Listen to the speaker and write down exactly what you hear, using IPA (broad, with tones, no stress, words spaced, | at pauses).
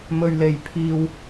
mɵ˧ɥle˧j pʰiː˧w